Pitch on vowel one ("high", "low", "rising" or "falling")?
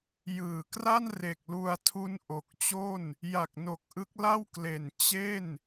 low